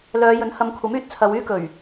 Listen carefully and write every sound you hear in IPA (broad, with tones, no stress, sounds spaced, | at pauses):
l œː˨˧ j ɵ˨˥ n h ɐ˨˧ m kʷʰ ɐ˨˥ m yː˧ t̚ t͡sʰ ɐ˨˧ w yː˥ k ɵ˨˩ ɥ